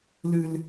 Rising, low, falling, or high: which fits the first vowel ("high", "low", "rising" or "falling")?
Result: high